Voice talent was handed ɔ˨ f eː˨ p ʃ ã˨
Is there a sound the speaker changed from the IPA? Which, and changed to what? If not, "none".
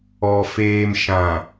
p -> m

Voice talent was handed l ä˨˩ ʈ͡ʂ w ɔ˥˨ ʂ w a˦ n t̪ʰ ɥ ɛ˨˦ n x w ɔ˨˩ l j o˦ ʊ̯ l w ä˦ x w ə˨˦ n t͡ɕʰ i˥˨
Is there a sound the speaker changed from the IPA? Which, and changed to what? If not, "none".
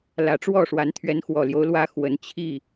a˦ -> a˨˦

